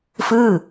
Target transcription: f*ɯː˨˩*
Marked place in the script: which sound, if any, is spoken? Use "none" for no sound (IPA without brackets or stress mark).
ɯː˥˩